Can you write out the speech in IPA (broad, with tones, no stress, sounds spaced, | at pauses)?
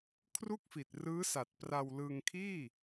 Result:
kʰ r u˥˩ k̚ f i˨˩ t̚ r ɯː˦˥ s a˨˩ t̚ p r a˧ w l ɯː˧ ŋ kʰ iː˥˩